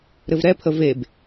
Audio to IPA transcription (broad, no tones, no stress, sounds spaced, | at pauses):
ɾ ɘ v ɾ ɛ pʰ ə v e b